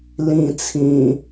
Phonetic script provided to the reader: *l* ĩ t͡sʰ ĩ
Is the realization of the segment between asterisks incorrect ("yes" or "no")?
no